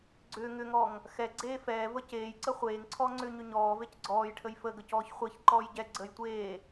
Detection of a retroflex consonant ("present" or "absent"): present